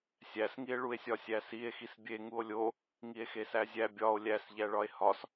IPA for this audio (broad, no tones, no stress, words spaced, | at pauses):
sʲæsŋie̯ɭue̯sʲɒ sʲæsie̯ xisbʲe ŋuo̯lʲo | ŋie̯xesæzʲæ bʲɒo̯ lʲæsʎæɭɒe̯ hɒs